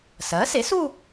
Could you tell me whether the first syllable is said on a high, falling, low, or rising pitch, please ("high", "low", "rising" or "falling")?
rising